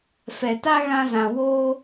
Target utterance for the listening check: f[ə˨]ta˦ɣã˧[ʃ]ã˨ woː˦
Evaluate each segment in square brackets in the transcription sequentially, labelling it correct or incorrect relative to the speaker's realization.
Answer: incorrect, incorrect

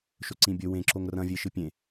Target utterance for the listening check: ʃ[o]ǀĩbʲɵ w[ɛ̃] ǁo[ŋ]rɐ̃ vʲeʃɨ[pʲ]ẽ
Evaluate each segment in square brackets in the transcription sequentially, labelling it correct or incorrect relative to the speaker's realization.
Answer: incorrect, incorrect, correct, correct

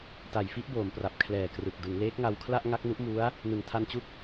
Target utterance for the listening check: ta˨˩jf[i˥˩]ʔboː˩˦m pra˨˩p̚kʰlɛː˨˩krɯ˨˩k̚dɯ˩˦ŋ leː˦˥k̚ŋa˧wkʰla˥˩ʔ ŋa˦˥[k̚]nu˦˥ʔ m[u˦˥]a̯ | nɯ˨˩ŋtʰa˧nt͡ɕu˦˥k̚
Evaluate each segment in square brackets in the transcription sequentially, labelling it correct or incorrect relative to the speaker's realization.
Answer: correct, correct, correct

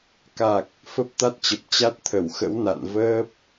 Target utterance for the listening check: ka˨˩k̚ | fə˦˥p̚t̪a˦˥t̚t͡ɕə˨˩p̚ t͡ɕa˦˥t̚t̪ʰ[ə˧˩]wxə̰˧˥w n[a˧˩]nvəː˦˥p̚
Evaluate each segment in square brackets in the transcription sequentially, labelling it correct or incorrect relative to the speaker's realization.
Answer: correct, incorrect

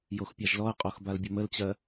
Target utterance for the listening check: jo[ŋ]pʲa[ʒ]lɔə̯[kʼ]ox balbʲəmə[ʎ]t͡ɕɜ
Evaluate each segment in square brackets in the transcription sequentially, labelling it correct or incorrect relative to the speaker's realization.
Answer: incorrect, correct, incorrect, incorrect

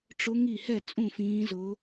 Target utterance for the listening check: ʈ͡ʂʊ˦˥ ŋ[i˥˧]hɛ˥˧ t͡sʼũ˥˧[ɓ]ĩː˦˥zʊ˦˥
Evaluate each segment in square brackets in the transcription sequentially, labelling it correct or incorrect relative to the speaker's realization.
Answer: correct, incorrect

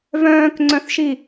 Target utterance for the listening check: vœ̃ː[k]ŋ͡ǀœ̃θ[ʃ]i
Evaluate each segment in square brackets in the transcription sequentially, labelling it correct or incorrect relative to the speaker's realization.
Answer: correct, correct

